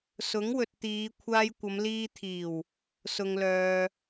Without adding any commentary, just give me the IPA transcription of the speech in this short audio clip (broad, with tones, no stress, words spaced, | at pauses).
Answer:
sʊ˨˥ŋwɵ˨t̚ t̪iː˨˧ kʷʰaː˥j kʷɐ˨˧mliː˧t̪ʰiː˨˩w | sʊ˨ŋlœː˨